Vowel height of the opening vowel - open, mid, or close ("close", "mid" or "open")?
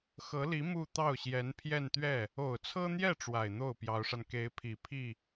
mid